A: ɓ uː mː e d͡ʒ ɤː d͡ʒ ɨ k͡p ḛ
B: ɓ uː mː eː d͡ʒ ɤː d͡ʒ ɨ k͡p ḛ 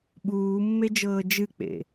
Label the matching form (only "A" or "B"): A